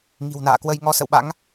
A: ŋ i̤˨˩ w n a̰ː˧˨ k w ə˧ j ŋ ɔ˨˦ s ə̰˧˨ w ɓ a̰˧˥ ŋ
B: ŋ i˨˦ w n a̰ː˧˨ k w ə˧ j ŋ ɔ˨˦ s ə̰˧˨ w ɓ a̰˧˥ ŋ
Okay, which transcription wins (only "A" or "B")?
A